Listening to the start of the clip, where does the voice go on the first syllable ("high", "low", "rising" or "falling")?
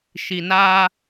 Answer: low